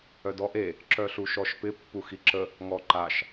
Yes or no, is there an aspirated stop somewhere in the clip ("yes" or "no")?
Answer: no